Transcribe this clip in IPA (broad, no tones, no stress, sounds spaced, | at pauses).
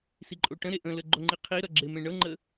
s i ǃʼ o ʈ ə̃ ɾ e ʔ ə̃ l ə ɡ͡ǃ o ŋ͡ǃ i qʰ i ɾ ʌ ɡ͡ǁ e m ẽ ɳ ɤ ŋ͡ǃ ə